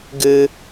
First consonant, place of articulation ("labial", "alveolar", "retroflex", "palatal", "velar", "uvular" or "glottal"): velar